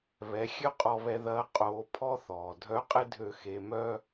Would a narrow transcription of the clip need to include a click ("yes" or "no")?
no